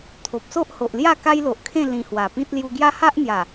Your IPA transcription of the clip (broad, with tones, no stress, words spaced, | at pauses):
t̪ʰo˨p̚so˦ʔho˨ʔlja˥˧ ka˦jlo˨ʔkʰẽ˥˧ lĩ˧hwa˨˩pĩ˦t̚ lju˧ɡja˦ha˦ʔn̪ja˨˩